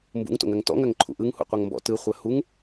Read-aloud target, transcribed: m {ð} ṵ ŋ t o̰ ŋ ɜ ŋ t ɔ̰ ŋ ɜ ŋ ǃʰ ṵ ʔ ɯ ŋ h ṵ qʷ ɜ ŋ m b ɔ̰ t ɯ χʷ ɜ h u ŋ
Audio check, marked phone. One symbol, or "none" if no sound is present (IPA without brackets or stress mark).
b